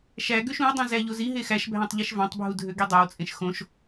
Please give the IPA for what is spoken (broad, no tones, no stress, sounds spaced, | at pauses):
ʃ æ ɡ ø ʃ ũ ə̯ dˤ ũ z æ ʎ o z i ɦ e x æ ʃ bʱ æ̃ tˤ ʎ i ʃ v ɑ̃ tˤ bʱ u dʱ ø ɡ i dˤ æ w t͡sʼ ẽ ʃ x õ ʃ